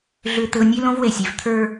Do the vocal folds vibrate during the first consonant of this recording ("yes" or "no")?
yes